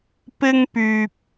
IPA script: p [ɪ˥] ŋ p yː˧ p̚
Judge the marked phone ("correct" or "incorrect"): correct